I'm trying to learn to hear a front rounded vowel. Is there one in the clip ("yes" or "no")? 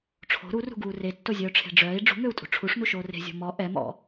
yes